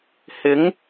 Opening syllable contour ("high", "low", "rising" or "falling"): rising